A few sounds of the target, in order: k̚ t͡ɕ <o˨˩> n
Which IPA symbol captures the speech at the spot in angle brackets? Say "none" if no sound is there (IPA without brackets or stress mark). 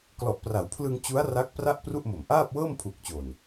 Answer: o˨˩